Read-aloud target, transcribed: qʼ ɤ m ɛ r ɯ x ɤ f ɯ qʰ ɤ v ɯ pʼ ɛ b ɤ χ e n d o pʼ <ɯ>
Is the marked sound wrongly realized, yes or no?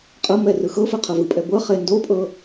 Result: yes